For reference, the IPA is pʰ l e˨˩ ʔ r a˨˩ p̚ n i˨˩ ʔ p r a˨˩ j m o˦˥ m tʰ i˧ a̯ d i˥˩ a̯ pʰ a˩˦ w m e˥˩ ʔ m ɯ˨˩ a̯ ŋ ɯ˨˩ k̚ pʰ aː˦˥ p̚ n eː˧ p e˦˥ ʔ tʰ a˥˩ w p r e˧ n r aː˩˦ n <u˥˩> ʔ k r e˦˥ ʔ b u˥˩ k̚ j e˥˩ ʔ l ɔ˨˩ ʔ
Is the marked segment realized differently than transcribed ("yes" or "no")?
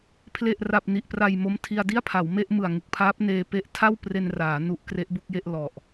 yes